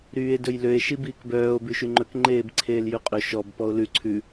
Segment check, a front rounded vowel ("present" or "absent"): present